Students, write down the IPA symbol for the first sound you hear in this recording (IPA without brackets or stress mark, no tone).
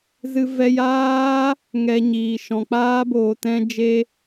z